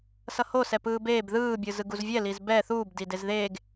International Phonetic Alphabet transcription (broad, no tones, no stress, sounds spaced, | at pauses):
s ʌ h o s ɛ p ɯː b eː b ð ɯː bʲ ɯ z ɯ ɡ u z vʲ ɛ l i z b ɛ θ uː b d i d e z ð e ɡ